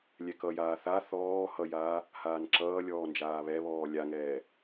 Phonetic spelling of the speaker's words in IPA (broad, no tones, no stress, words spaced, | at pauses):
lʲɛkʌjaː θa θɔː hʌjaː | haːnǁʌːlʲɔː nd͡ʒaːβɛβɔː lʲaŋɛː